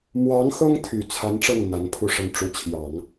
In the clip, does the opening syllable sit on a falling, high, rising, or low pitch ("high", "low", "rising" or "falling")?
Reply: rising